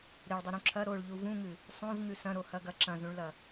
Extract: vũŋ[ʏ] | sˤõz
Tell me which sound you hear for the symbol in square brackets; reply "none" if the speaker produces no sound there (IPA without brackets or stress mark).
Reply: ɨ